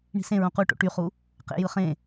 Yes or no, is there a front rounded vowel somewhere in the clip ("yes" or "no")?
yes